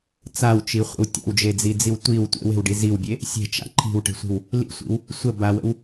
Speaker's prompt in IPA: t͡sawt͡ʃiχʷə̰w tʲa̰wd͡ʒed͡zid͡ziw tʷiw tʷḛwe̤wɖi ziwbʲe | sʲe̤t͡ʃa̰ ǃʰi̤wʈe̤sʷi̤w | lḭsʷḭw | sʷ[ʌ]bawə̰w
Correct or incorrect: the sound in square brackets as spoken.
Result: incorrect: ə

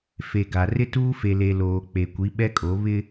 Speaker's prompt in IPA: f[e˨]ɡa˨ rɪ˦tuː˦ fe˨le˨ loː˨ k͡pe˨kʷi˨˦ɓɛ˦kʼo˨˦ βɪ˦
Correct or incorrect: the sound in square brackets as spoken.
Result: correct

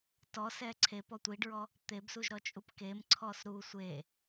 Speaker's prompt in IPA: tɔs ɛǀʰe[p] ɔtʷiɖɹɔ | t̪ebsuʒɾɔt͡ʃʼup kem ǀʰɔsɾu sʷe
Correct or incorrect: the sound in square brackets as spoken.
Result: correct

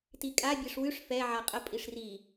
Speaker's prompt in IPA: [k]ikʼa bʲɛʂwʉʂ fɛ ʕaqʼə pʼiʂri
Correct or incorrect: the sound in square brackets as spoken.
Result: incorrect: t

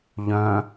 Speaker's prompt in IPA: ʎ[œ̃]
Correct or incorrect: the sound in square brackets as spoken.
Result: correct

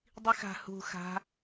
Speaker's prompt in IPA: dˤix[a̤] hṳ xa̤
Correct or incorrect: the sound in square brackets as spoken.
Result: correct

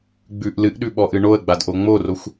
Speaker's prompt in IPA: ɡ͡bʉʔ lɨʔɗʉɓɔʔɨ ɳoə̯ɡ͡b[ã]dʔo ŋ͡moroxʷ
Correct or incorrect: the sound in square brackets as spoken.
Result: incorrect: a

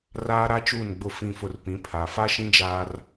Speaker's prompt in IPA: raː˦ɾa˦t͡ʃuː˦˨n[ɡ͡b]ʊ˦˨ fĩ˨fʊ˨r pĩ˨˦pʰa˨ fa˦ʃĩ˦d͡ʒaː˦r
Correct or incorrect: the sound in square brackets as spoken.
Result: correct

